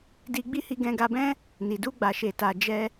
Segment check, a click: absent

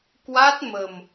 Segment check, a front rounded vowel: absent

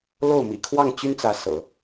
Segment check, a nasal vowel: absent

